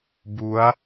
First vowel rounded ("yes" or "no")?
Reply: yes